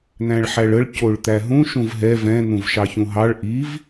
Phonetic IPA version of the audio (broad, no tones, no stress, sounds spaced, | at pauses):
n̪ æ̃ ɭ ħ æ ɭ ə ɭ c o ɭ t̪ æ ɦ ũ ʃ ũ v ɦ ɛ v ɛ̃ n̪ ũ v ʃ ɑ ç ũ ɦ ɑ ɭ ʔ i v